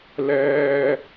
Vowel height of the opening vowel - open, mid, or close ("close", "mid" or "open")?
mid